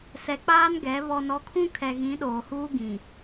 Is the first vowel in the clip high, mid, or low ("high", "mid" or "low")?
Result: mid